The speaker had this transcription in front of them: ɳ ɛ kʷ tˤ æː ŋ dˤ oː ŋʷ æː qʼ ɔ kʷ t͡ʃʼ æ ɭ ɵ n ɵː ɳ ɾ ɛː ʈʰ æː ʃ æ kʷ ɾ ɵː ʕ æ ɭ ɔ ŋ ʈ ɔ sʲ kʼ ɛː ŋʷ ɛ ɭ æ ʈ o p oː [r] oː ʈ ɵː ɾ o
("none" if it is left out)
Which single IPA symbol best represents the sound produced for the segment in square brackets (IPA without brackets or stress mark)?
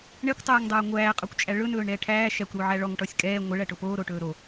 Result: ɾ